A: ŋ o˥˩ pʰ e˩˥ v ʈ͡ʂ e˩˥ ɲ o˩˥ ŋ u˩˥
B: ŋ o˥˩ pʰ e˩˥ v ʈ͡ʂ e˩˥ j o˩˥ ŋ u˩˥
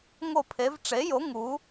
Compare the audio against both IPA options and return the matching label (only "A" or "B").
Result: B